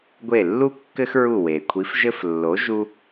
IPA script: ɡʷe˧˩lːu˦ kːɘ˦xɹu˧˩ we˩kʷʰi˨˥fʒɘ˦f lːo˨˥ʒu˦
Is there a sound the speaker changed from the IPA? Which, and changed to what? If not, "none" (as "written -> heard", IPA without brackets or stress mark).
none